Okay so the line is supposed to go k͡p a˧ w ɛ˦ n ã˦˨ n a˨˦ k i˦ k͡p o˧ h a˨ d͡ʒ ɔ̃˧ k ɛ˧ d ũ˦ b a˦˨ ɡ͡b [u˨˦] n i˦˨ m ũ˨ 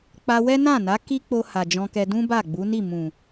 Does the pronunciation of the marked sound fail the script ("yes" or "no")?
no